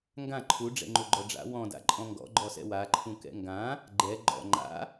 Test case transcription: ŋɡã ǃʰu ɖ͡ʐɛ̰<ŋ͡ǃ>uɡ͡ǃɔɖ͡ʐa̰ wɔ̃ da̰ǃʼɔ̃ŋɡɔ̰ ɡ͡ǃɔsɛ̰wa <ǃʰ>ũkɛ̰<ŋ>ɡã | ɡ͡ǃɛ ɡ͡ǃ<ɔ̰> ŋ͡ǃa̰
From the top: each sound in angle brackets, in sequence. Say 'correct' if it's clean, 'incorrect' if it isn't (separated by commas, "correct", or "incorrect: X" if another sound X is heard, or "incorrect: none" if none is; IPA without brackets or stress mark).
correct, correct, correct, correct